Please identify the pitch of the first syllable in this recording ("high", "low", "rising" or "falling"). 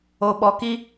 low